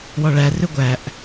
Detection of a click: absent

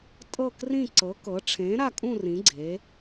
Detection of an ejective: present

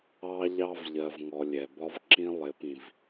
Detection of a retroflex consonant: absent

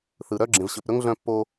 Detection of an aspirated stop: absent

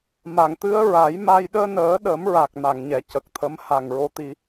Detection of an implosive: present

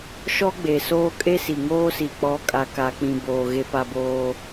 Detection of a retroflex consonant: absent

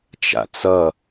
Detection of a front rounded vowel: absent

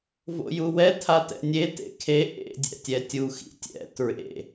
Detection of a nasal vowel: absent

